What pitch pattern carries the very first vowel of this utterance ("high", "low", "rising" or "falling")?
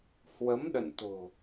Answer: rising